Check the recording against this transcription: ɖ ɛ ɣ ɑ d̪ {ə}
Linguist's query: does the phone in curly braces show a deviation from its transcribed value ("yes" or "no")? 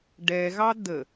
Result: no